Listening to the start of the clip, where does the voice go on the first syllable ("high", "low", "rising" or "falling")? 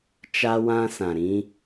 high